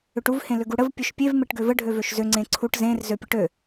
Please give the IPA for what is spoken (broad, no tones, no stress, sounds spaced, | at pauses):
ʏ ʈ u v h ẽ l ʏ ɡ u ɽ ə v pʲ ø ʃ pʲ e v m e ʈ ɡ ø v ə ɖʱ ø v ø ʃ z ø ŋ͡ǀ ẽ ǀʰ u ʈ z ẽ r z ø pʲ ə ʈ ø